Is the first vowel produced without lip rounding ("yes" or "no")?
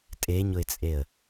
yes